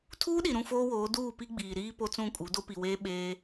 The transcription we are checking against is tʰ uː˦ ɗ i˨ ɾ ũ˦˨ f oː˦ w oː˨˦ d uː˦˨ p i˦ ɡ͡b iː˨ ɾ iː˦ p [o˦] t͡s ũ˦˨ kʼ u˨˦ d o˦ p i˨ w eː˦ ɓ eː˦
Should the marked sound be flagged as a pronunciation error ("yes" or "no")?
no